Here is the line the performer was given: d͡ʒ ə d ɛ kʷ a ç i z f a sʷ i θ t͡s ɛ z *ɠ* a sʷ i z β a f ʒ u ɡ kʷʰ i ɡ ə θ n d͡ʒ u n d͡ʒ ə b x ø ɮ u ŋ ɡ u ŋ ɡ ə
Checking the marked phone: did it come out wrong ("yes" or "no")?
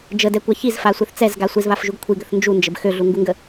yes